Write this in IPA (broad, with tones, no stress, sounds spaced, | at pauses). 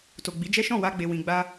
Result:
t o˨ ɡ͡b i˨˦ d͡ʒ ɛ˦ ʃ ɔ̃˦˨ w a˧ ɡ͡b e˨ w ĩ˨ ɡ͡b a˧